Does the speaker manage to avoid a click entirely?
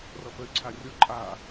no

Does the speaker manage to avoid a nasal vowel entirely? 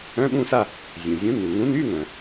no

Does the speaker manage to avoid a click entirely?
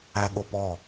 yes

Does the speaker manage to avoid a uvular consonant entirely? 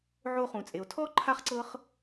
no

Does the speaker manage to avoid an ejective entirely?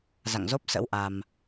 yes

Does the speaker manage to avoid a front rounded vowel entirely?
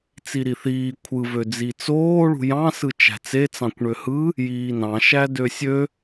no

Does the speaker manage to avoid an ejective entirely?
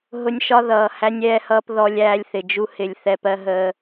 yes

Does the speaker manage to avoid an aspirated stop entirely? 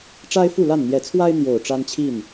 no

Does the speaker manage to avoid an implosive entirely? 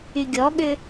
no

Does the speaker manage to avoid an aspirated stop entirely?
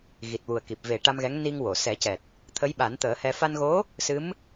no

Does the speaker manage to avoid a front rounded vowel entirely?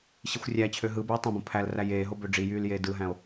no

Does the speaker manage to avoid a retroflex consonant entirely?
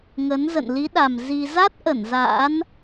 yes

